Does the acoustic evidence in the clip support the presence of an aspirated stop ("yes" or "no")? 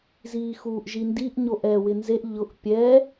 no